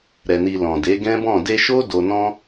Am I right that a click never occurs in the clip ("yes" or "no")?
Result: yes